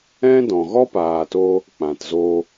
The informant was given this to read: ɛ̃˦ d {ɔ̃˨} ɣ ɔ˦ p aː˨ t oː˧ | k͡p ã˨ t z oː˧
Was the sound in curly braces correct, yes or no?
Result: yes